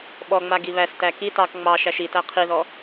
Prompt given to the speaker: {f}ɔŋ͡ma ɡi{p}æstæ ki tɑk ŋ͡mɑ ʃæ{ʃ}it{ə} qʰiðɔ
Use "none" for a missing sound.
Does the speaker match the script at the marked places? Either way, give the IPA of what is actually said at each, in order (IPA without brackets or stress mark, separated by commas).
ɓ, β, ʃ, æ